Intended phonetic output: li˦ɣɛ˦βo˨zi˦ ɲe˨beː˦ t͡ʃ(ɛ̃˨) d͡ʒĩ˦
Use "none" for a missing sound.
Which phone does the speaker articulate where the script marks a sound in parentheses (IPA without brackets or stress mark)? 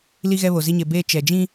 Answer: ɛ˨